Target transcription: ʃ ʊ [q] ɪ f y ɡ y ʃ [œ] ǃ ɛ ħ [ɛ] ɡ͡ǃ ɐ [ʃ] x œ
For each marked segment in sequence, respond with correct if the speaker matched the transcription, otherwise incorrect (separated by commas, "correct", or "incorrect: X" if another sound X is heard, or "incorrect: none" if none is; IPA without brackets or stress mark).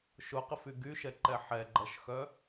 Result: correct, incorrect: ɛ, correct, correct